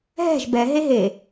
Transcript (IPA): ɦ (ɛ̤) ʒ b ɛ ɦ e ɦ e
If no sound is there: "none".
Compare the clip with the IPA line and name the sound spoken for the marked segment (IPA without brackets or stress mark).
ɛ̤